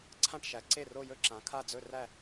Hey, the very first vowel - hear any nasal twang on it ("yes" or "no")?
yes